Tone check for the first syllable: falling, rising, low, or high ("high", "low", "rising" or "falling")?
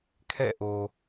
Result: falling